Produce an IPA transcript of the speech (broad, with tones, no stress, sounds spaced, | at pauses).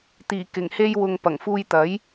t̪ iː˨˩ k ɪ˨˩ ŋ h e˧ j w ʊ˨ ŋ p ɐ˨˩ ŋ f uː˧ j t̪ ɐ˨˥ j